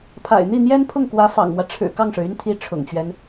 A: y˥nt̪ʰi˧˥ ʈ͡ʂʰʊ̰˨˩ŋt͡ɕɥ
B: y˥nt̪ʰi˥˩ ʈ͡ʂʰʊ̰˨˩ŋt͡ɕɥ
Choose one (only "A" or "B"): A